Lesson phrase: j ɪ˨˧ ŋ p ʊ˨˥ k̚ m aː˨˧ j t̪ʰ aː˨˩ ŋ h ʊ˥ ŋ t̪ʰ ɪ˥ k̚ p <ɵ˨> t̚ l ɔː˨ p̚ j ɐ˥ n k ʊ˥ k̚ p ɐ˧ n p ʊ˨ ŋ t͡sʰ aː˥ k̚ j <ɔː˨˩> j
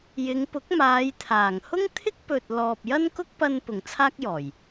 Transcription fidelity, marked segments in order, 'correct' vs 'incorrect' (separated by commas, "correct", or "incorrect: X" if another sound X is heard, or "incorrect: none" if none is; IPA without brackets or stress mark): correct, correct